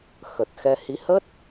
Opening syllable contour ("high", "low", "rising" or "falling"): low